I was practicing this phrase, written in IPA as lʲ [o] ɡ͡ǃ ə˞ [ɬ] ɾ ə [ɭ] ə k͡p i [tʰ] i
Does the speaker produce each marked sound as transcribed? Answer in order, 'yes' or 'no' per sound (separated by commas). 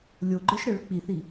yes, no, yes, no